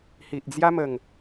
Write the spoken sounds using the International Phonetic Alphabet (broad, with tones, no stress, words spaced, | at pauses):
hi˨ʔd͡zja˦mə˨˩ŋ